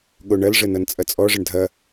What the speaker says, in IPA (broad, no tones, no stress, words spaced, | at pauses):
ɠoɳɐlʐə nʌnt͡sʼɐt͡sʼɔʐəɳ dʱɐ